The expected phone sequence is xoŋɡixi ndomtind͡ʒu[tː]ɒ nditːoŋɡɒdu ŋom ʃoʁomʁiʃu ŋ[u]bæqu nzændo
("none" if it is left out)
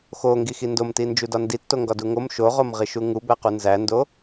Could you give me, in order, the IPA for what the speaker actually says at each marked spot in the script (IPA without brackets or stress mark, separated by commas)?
d, u